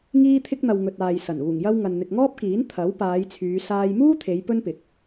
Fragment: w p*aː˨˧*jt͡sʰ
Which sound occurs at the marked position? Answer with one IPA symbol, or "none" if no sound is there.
aː˨˧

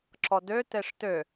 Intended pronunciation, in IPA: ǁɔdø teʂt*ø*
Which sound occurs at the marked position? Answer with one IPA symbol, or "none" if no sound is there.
ø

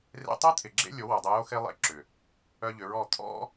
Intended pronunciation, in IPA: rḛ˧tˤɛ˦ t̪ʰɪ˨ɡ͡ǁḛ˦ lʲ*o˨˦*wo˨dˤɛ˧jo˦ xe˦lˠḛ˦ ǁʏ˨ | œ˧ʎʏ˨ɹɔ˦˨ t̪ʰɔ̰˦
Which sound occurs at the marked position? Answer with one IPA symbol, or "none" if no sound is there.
o˨˦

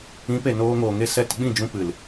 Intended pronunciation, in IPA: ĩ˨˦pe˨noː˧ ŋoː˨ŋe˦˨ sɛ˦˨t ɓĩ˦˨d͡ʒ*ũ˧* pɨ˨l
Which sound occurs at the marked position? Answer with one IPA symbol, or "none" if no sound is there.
ũ˧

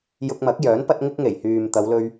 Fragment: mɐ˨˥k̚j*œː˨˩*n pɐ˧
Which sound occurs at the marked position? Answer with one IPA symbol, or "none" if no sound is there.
œː˨˥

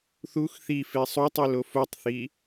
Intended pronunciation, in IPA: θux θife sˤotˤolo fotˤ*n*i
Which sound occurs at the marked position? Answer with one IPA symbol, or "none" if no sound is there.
θ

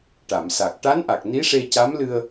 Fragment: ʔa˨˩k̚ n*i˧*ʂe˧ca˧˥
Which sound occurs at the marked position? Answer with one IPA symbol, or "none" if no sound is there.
i˧˥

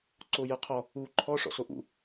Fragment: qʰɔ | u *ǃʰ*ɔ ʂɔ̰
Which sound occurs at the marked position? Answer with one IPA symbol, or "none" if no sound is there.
ǃʰ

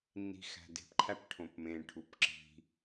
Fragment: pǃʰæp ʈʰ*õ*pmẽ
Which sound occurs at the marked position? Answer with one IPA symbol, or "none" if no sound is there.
õ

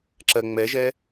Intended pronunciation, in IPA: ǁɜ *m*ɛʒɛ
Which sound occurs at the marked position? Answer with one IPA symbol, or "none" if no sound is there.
ŋ͡m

